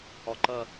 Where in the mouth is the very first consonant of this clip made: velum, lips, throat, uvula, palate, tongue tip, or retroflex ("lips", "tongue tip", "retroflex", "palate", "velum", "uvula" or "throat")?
throat